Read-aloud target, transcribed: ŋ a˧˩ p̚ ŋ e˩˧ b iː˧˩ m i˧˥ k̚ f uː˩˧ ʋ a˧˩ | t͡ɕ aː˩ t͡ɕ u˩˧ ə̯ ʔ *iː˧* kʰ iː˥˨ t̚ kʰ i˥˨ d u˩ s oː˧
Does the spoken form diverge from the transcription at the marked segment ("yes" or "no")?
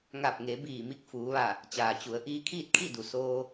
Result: no